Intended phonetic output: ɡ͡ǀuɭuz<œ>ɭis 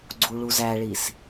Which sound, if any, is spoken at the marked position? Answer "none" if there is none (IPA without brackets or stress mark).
æ